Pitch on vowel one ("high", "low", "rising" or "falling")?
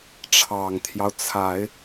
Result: low